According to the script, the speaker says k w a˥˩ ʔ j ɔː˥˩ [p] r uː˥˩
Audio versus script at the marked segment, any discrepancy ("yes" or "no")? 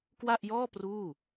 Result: no